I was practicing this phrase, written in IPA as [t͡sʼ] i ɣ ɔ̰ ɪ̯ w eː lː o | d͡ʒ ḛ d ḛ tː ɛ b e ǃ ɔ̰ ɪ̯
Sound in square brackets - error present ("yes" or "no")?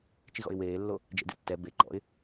yes